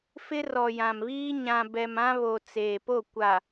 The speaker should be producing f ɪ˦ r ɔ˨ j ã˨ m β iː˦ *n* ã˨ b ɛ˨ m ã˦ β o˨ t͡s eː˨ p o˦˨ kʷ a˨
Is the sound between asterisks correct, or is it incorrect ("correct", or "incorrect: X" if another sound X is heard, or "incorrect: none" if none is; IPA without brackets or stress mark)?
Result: incorrect: ɲ